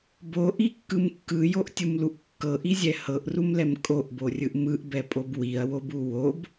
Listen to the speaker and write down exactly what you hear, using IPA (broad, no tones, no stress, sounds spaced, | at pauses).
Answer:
b o ʔ i kː ɯ m kː ɯ j o ʔ tʲ u m l u ʔ kː ɤ ʔ i zʲ ɛ h ɤ ʔ r u m l ɛ m kʼ o ʔ b o rʲ ɯ ʔ m ɯ ʔ b ɛ pʼ o b w i ɐ̯ w o b u w o b